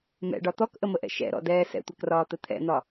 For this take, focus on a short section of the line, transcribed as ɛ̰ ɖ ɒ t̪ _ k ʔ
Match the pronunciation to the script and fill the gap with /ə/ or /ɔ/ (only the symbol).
ɔ